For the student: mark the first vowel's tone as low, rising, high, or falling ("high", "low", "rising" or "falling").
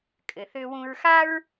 low